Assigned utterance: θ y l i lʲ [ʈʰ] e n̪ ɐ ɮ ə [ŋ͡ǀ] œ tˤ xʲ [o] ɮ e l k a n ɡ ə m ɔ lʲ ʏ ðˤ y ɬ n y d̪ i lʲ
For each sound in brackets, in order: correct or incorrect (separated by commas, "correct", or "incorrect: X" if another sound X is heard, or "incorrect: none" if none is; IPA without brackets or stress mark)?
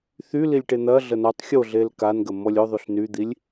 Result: incorrect: ʈ, incorrect: n, correct